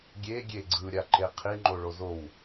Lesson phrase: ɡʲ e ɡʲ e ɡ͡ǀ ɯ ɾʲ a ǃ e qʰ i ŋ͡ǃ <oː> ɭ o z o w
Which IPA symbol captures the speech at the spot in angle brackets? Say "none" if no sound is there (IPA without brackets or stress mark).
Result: o